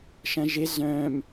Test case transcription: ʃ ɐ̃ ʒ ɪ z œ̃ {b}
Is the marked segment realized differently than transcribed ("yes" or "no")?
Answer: yes